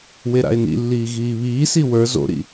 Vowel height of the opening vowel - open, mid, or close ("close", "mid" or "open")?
mid